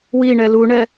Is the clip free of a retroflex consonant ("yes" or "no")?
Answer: no